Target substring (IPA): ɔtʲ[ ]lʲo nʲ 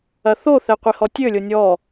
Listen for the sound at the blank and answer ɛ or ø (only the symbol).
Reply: ø